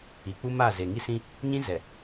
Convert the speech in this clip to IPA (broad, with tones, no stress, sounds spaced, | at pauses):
i˨ k͡p u˦ m a˦˨ z e˨ ŋ i˦ s ĩ˦ | ɲ ĩ˦ z ɛ˨